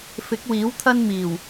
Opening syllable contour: rising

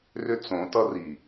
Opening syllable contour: high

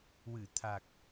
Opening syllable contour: low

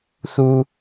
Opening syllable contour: high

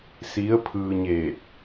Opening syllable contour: rising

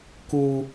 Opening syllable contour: high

